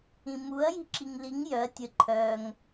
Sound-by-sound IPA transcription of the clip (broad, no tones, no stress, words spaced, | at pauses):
ĩmuɐ̯ ji̤ǁiŋliŋ jœɐ̯ tʲə ǃʰœŋ